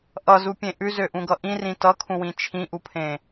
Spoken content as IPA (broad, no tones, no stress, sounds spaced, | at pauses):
ʔ ʌ z u pʲ ẽ ʔ ʉ z ø ʔ ũ ɡ ʌ ʔ ĩ r ĩ t ʌ kʰ ũ w ĩ t͡ʃʰ ĩ ʔ u pʰ ẽ